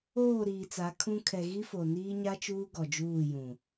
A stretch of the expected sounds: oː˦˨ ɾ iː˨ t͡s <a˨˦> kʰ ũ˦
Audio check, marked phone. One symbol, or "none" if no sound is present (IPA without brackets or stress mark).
a˨˦